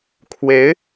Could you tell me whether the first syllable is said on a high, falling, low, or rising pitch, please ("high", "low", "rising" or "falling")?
rising